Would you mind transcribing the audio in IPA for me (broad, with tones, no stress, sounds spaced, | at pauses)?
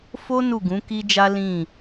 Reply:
f o˦ n u˦˨ ɡ ũ˨˦ k i˦ d͡ʒ a˦ l ĩ˦˨